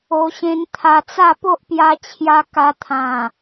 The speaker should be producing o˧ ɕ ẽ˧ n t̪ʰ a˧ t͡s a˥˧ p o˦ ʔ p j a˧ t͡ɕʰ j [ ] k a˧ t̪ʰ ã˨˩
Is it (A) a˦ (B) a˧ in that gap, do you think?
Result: B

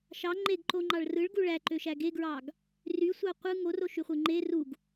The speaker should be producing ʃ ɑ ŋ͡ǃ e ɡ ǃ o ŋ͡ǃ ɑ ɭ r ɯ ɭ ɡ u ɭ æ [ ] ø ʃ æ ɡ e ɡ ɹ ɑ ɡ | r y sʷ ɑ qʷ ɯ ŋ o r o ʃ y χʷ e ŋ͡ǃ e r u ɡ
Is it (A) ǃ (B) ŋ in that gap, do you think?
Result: A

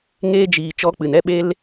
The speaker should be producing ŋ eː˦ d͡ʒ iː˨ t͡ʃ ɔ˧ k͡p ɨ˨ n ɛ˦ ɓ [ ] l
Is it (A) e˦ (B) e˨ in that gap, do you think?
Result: A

